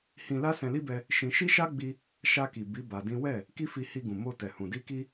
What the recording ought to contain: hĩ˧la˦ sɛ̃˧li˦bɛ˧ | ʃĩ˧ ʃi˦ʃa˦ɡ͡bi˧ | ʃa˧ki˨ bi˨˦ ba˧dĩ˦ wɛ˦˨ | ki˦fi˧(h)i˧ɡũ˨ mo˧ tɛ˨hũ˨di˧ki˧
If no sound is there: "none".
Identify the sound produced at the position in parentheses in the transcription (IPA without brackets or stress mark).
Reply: h